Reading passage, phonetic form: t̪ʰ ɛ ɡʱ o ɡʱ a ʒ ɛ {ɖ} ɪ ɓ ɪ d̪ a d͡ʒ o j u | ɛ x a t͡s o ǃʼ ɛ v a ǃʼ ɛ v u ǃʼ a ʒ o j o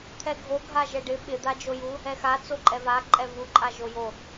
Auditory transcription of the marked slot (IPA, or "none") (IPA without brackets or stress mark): ɖ